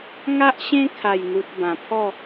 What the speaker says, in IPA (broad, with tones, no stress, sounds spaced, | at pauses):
ŋ a˦ ʔ ɕ ẽ˦ kʰ a˥˧ j n̪ u˦ t̚ b ã˧ pʰ ɔ˥˧